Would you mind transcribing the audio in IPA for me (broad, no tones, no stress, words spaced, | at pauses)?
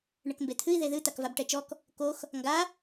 ɳɘkmbet̪ʰɨi̯ ðeðɨ t̪akvabʈɛt͡ʃɔk | kox | ŋɡa